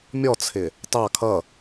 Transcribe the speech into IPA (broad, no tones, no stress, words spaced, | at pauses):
mʲɔt͡sʰɪ | tɑ kʰʌ